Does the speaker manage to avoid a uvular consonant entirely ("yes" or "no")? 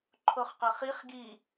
no